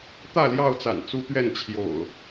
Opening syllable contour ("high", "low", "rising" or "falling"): falling